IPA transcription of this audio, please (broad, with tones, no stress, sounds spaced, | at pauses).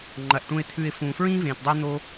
ŋ͡ǃ ɐ˩ ʔ ʈ ũ˨ ɪ̯ t̪ʰ ʉ˨ ɪ̯ f ũː˩ f ɹ ĩː˥ v ẽː˩ t dˤ ɵ˦ ɪ̯ n̪ o˦